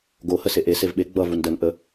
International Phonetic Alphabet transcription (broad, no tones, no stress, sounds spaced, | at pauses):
ɡ o h ə s e ʔ e s e v ɓ e ɡ͡b ʌ v u n d ə n ʔ ə